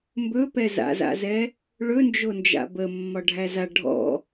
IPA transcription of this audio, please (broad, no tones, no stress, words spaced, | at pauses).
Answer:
mbɵpɛ za̰za̰zɛ | ɭɵnd͡ʒo nd͡ʒa̰bə mːɒɖʱæza ɖʱɔ̰